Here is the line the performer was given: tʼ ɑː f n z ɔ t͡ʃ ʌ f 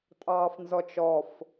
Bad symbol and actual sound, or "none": ʌ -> ɔ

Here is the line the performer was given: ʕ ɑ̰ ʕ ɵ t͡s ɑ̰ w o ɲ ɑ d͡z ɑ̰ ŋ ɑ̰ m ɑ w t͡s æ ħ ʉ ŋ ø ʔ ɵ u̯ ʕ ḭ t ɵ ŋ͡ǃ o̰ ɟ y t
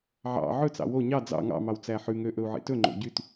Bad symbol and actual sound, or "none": none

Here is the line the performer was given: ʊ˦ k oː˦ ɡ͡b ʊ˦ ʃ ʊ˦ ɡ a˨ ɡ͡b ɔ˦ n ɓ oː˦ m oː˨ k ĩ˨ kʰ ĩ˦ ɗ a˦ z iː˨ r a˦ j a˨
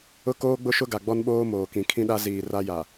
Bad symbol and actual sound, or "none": none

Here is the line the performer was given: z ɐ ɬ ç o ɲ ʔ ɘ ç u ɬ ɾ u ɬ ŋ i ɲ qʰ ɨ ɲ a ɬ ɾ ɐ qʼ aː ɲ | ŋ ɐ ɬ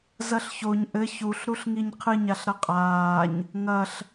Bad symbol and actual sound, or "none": none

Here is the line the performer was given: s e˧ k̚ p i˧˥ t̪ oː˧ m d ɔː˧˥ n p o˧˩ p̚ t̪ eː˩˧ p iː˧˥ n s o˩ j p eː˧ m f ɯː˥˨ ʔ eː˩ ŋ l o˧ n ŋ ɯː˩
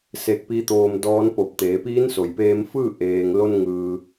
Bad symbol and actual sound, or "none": none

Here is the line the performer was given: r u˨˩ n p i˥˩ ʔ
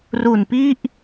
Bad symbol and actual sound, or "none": none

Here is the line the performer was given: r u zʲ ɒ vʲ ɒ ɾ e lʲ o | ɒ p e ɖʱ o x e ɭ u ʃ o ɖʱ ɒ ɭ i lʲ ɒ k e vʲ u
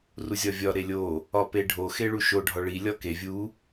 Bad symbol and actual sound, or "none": none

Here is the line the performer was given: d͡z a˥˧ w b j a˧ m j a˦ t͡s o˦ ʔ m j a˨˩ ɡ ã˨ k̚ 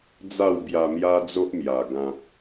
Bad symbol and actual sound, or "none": t͡s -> d͡z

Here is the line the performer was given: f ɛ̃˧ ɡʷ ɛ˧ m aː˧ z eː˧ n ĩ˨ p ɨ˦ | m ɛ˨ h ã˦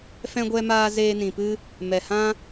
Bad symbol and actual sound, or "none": none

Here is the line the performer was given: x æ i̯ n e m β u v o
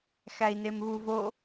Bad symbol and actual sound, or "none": none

